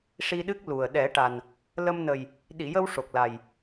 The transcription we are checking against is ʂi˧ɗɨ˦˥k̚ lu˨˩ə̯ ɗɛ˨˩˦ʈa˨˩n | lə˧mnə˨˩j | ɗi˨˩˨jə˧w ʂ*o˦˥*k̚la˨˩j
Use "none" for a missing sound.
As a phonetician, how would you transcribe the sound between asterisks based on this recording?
o˨˩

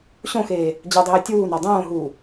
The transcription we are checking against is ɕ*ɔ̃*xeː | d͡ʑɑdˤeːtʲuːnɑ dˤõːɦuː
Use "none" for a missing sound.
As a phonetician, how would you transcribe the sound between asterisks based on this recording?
õ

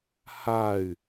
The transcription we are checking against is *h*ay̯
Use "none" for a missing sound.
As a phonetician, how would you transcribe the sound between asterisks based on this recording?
h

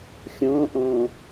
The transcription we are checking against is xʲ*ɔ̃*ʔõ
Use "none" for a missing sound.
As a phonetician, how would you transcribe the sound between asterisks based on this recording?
õ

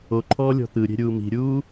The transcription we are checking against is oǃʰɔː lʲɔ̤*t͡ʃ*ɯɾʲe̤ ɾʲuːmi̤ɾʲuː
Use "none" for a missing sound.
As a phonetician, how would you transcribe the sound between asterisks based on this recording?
t̪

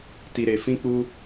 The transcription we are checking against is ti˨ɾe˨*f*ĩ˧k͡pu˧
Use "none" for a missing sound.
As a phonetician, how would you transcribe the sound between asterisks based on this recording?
f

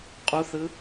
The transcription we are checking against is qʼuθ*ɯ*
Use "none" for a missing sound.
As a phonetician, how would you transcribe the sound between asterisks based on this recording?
ɯ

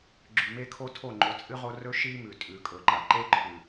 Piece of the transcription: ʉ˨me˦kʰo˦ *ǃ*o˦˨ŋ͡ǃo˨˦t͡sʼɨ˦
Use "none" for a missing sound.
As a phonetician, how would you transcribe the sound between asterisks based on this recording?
tʰ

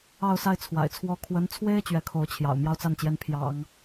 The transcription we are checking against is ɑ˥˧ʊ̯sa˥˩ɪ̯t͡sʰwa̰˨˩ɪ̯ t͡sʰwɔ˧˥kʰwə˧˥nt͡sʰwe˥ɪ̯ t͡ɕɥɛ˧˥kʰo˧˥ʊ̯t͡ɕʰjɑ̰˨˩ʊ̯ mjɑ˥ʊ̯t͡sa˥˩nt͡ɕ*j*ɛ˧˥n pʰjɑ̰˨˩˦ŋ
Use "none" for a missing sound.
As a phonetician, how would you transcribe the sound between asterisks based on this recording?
j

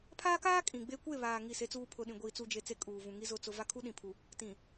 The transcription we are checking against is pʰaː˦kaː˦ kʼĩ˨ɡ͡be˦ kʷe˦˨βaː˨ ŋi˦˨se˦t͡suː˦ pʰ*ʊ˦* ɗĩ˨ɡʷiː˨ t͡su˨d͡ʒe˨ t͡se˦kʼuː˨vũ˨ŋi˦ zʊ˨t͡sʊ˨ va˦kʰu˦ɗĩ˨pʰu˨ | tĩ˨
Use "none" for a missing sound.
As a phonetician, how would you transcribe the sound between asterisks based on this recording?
ʊ˨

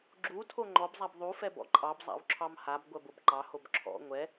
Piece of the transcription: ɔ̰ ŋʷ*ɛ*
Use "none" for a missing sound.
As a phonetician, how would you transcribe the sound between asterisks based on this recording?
ɛ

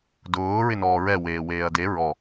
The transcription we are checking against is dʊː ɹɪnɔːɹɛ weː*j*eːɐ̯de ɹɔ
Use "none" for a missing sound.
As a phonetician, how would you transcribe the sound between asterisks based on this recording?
w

